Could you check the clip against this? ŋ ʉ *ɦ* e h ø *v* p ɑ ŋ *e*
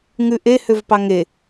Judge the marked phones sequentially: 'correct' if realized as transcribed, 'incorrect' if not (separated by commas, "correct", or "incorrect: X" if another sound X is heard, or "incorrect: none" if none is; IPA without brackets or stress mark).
incorrect: ʔ, correct, correct